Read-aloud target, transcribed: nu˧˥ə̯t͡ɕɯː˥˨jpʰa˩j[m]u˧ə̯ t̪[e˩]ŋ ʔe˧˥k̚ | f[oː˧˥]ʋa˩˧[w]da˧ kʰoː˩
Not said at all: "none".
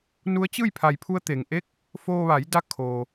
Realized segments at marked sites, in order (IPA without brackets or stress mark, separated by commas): pʰ, e˩, oː˧, j